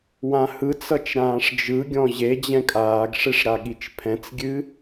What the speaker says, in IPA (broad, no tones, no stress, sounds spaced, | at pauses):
w ã h ɯ t͡s ʌ t͡ʃ ɾ ãː ʂ d͡ʒ ɯ ɡʲ ɔ̃ ʑ e d͡ʑ ɛ̃ kʼ aː ɡ ʂ e ʂ ɾ a ɠ i t͡ʃ pʰ ɛ̃ t͡s ɡʲ ɨ